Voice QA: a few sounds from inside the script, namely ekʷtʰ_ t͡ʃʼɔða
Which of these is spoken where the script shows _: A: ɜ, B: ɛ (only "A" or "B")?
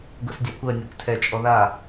B